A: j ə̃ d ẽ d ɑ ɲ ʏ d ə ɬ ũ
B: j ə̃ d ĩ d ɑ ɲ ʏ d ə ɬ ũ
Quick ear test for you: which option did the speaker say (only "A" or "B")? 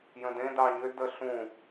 A